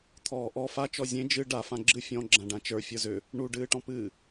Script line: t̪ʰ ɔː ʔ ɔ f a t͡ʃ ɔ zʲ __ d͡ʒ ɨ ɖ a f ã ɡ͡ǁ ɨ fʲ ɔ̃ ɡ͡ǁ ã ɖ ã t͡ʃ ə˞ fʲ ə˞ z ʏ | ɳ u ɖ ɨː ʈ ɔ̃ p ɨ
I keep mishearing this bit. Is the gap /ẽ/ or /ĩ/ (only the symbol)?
ẽ